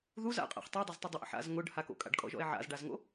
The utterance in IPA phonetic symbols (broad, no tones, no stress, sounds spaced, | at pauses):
ð u z a̰ qʼ a̰ χ tˤ o dˤ a z tˤ u dˤ ʊ ʔ ə̰ ħ a̰ z ŋ ʊ ɖ h a k o̰ kʼ a̰ ɖ kʼ ɔ̰ ʒ ɔ̰ e̯ ʕ a̰ z ɖ a z ŋ o̰